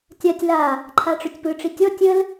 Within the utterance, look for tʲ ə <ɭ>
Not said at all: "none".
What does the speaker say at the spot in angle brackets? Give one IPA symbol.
l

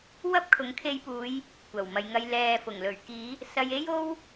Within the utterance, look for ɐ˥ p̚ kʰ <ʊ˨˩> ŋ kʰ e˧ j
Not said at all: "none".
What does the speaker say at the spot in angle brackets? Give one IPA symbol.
ʊ˨˥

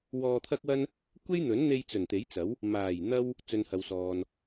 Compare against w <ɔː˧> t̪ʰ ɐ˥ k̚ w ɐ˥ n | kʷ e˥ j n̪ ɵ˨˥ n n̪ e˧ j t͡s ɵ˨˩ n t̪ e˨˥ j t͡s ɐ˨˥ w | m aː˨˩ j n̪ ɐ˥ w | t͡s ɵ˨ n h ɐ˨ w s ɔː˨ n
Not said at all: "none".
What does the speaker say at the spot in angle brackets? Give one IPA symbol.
ɔː˧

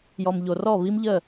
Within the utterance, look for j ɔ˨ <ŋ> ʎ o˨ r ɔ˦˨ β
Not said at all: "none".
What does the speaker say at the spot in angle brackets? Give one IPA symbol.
m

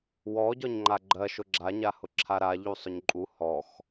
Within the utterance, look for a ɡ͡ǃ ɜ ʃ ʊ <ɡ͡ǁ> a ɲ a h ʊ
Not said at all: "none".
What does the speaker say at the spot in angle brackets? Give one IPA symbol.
ɡ͡ǁ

